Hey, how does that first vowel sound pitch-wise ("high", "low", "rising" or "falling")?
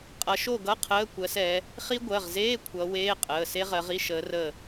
rising